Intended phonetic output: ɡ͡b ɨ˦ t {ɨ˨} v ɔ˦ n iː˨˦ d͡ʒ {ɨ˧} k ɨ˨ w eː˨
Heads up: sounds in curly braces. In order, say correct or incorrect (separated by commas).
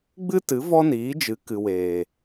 incorrect, incorrect